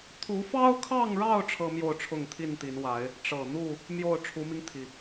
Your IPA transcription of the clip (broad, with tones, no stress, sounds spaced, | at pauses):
t̪ʰ u˨˦ f ɑ˦ ʊ̯ kʰ ɑ˥˨ ŋ ɻ ɑ˥˨ ʊ̯ ʈ͡ʂʰ ɤ˦ m j o˥˨ ʊ̯ ʈ͡ʂʰ ʊ˥˨ ŋ t̪ʰ i˥˨ n t̪ i˨˦ n w a˨˦ ɪ̯ | ʈ͡ʂ ɤ˨˩ n̪ u˥˨ | m j o˥˨ ʊ̯ ʈ͡ʂʰ u˨˦ m i˧ ŋ t̪ʰ i˩